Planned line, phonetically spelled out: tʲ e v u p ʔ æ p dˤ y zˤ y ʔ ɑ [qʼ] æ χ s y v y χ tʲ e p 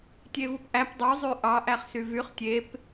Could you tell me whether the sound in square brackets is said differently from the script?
yes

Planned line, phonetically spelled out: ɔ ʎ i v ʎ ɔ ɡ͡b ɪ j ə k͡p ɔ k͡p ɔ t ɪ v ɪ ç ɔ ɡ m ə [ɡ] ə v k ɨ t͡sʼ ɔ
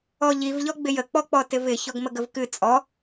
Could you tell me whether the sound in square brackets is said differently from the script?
no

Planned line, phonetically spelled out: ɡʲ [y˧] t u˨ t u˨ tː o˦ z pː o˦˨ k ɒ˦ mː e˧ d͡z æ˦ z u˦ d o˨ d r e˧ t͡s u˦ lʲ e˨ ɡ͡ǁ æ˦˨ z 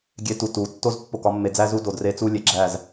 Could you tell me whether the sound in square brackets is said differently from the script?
yes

